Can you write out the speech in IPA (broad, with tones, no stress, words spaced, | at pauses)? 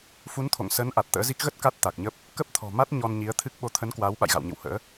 fu˨˦nt̪ʰo̰˧˨ŋ sə˨˦n ʔa˨˩t̚t̪ə̰ː˧˥zi˦˥k̚ ɣə˦˥t̚ ka˦˥t̚t̪a˨˩k̚ɲə˦˥p̚ | kə˦˥p̚t̪ʰɔ̤˨˩ma˦˥t̚ ɲɔ˧nɲi˨˦ə̯t̪ʰɨ˦˥k̚ ɓo˨˦t̪ʰə˨˦n kwaː˨˦wɓa̰˧˨jɣa̰˧˨wɲɨ̰˧˨w hə̰ː˧˥